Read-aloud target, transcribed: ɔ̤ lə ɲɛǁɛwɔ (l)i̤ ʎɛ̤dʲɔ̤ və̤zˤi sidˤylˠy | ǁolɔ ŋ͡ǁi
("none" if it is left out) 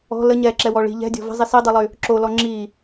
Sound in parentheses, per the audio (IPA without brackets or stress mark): ɭ